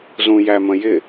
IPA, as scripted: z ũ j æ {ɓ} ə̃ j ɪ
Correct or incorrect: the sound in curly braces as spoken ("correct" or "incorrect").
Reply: incorrect